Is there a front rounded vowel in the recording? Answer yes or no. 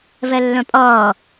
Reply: yes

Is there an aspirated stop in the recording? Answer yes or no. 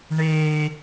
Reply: no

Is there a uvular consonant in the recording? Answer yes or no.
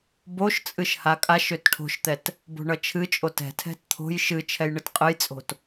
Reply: yes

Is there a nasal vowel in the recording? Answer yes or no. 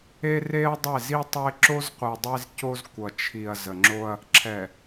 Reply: no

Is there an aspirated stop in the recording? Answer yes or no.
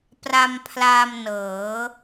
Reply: yes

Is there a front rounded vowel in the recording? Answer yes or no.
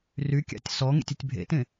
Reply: yes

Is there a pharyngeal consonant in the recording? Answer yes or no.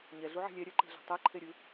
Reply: yes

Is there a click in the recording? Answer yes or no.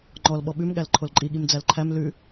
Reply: yes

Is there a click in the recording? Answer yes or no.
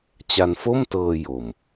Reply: no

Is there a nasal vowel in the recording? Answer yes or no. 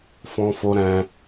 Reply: yes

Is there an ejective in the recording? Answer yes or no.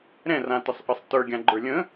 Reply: no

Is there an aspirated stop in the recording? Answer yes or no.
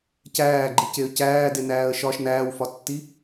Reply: no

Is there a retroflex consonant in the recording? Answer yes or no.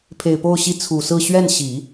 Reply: no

